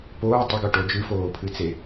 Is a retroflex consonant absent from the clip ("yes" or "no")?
no